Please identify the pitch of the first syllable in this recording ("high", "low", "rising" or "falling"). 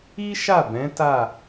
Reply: high